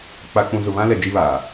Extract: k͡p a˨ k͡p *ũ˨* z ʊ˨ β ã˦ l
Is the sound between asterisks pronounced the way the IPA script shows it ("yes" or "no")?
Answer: yes